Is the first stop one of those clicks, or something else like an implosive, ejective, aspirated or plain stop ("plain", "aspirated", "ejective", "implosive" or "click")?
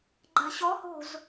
click